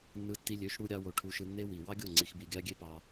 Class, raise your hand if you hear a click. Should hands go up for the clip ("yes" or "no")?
yes